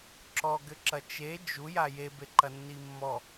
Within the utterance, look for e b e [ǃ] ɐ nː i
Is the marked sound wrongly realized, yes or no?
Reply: no